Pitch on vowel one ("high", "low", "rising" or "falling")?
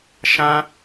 high